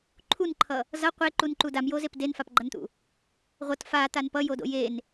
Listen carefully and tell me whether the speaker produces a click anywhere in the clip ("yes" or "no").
yes